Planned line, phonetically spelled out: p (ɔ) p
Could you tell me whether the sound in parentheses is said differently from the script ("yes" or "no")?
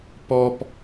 no